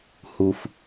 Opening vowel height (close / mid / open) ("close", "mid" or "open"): close